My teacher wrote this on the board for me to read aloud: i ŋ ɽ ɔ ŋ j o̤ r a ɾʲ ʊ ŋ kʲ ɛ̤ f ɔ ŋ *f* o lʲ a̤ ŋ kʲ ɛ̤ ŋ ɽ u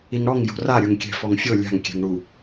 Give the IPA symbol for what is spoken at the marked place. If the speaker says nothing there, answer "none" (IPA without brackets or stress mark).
fʲ